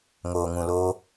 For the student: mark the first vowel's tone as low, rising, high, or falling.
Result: low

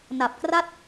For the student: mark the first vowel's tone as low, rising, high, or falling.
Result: low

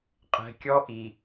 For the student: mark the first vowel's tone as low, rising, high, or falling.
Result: low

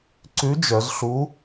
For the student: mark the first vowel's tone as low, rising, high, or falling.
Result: rising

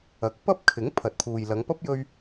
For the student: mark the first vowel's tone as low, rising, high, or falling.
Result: rising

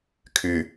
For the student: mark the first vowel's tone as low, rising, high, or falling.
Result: low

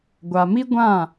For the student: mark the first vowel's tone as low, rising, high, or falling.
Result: low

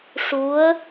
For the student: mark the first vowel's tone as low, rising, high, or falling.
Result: rising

